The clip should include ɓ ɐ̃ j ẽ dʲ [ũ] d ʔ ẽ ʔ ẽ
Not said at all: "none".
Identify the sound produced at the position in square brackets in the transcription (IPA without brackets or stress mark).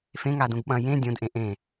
õ